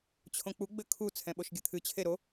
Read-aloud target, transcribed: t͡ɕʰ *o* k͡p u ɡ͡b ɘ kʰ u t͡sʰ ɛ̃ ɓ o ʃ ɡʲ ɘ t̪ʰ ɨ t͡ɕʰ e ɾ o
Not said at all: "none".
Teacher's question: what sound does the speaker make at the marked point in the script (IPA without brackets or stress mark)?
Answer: õ